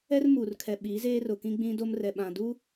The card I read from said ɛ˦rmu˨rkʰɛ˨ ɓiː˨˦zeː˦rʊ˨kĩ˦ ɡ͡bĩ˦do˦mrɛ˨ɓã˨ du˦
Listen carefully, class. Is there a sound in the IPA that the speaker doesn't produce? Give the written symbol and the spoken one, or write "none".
none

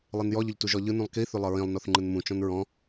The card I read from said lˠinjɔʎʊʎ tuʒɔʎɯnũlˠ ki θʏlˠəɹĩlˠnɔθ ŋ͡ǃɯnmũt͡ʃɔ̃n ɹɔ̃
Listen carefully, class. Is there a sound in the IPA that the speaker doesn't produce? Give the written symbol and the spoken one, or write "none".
none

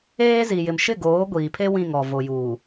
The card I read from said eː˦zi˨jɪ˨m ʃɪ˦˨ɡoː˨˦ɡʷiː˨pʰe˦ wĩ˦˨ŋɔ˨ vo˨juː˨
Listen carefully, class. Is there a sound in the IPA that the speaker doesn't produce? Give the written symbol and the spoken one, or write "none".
none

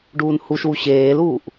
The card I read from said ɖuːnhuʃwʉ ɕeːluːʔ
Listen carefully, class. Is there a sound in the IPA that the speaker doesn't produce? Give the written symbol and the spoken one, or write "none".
ʉ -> u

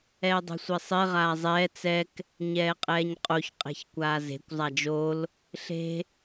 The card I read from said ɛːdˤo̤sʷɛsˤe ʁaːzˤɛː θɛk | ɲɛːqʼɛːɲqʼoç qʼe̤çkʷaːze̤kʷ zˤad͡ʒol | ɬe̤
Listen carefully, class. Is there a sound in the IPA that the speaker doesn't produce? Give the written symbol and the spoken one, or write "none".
θ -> t͡s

